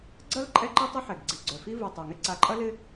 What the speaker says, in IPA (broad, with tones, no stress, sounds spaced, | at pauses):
ɡ͡ǀ ɐ˥ l ǃʼ ɛ˥ ǃ i˥ tˤ ɪ˥ ħ ɛ˨˩ ɡ ɡ͡ǀ i˨˩ ɡ͡ǀ œ˨˩ f i˥ v u˨˩ tˤ œ˨˩ ŋ ɪ˥ ǀ a˨˩ ǃʼ ɐ˥ l ɪ˥